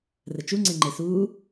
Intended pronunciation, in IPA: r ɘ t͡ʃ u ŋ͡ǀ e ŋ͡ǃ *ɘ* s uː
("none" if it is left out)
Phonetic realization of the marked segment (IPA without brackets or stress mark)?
e